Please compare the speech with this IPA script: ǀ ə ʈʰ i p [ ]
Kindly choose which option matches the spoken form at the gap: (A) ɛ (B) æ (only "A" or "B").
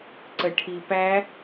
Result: B